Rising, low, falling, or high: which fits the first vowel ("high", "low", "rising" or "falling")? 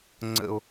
high